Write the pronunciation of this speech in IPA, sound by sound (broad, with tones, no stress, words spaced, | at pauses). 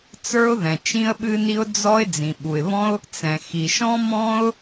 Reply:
t͡sə˞˥ʊ̯ðɛ̃˩ t͡ʃĩ˥ə̯ɓɨ˥ni˥ʊ̯ d͡zɔ˥ɪ̯ d͡zĩ˩ɓu˩ɪ̯βɔ̃˥ʊ̯ | t͡sɛ̃˩ xi˩ʃɔ̃˥ mɔ̃˥ʊ̯